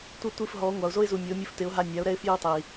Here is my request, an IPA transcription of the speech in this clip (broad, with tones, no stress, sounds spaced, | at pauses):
tʷ e˧ tʷ i˦˨ f ɦ ɔ˨˦ ŋʷ a˨ ʊ̯ z o˦ ɪ̯ z u˨ mʲ o˨˦ mʲ u˧ f t ɪ˨˦ ʊ̯ ɦ a˧ nʲ a˨˦ ʊ̯ ɾ ɛ˦ ɪ̯ f j ɪ˦ ʊ̯ tˤ i˨